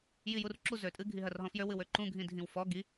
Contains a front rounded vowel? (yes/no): yes